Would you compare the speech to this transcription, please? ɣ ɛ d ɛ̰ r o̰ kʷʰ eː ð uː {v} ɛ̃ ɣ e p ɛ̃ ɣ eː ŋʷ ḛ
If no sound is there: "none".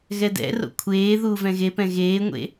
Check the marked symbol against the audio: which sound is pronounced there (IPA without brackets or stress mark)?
v